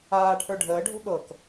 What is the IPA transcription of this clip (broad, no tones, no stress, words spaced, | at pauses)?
aːʈʰə˞ ɖʱəːɖʱo̤ ɠɤk